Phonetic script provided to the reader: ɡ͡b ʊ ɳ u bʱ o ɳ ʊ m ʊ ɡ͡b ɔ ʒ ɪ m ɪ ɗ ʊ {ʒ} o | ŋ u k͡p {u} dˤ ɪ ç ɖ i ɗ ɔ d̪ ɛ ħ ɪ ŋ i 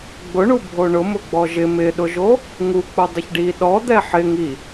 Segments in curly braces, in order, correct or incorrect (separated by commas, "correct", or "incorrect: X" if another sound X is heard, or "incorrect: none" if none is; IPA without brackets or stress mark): correct, correct